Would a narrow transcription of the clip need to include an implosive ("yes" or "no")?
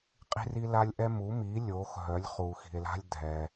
no